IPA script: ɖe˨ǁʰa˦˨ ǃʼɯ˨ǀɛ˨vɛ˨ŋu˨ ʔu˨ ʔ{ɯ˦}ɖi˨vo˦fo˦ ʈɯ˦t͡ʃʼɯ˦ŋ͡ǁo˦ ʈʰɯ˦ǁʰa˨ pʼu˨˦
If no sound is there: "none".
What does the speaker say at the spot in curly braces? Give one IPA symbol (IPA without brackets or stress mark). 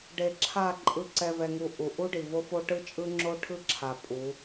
u˦